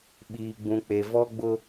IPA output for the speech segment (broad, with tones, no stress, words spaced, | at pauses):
ɓiː˨ɡ͡bũ˨k͡pe˨ vɔ˦ɡ͡bʊ˦